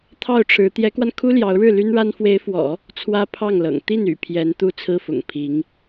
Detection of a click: absent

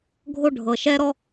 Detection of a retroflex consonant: present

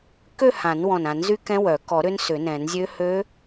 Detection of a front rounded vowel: present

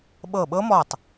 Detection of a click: absent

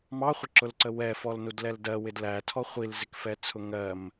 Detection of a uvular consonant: present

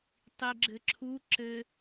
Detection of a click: present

